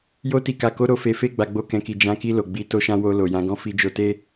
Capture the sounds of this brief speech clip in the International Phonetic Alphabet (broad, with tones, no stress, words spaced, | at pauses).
jo˧ti˨ka˨ko˨˦ ɾo˧fe˧ fe˧ ɡ͡ba˨ɡ͡bo˧kɛ̃˨ki˨ d͡ʒã˨˦ki˧ lo˨ɡ͡bi˧ to˧ʃã˧ wo˧lo˨jã˨˦ ɡɔ̃˧fi˧ d͡ʒo˧te˦